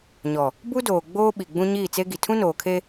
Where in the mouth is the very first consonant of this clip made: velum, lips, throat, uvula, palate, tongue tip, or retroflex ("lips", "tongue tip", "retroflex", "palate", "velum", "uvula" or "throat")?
palate